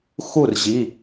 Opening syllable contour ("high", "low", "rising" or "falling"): falling